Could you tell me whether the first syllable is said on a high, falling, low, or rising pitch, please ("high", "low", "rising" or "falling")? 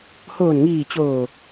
low